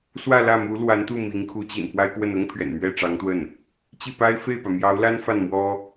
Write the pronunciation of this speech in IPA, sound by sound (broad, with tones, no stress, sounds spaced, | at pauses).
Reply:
s w ä˥˧ l ä˥˩ m u˧˥ l w a˧˥ n t̪ u˥˩ m i˧˥ ŋ kʰ u˧˥ t͡ɕ ḭ˨˩ n p w a˥ ɪ̯ k w ə˥˩ n ʊ˥ ŋ pʰ ɥ ɛ̰˨˩ n m ɥ ɛ˥˩ ʈ͡ʂ ɑ˧˥ ŋ t̪ w ə˥˩ n | t͡ɕ i˥˩ p a˥ ɪ̯ f e˥˩ ɪ̯ p ä˩ m j ɑ˧˥ ʊ̯ l a˥ n f a˥˩ n m w ɔ˥